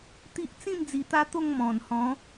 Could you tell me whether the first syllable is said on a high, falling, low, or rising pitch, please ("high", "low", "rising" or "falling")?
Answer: high